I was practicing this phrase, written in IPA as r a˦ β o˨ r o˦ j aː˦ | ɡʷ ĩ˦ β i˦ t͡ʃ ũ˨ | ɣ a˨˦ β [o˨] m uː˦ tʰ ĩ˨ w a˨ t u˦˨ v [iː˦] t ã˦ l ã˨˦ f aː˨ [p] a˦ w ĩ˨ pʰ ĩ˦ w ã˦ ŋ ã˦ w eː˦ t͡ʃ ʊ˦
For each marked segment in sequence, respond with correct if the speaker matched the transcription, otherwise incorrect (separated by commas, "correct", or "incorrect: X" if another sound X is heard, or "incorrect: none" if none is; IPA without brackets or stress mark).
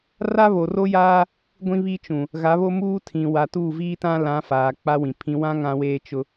incorrect: o˦, correct, incorrect: k͡p